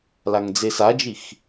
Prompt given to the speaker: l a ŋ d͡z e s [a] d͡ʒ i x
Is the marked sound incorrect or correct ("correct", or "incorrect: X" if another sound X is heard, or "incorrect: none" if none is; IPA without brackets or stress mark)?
correct